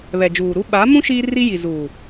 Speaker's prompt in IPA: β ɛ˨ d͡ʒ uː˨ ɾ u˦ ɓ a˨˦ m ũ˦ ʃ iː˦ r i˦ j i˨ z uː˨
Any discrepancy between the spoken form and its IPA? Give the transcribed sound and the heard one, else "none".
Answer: none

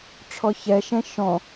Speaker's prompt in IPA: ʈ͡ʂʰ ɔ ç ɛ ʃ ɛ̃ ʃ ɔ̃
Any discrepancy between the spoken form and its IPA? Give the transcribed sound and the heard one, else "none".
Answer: none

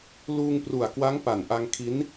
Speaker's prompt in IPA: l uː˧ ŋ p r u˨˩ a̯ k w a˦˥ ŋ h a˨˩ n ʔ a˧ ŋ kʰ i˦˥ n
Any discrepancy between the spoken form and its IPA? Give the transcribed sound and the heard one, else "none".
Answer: h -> p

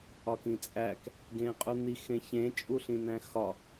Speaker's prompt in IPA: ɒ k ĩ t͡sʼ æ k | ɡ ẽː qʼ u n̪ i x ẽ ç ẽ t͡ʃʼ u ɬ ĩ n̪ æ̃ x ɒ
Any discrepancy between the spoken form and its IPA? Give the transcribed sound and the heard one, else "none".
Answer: none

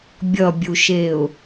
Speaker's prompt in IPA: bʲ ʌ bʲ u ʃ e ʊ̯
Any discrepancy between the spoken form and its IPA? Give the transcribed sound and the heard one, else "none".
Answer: none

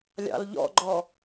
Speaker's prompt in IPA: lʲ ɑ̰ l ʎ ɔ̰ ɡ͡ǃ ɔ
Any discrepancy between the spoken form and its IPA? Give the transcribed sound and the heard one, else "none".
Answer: none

